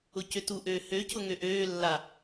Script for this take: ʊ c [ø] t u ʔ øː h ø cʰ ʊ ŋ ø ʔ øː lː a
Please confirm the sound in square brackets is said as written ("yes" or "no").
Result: yes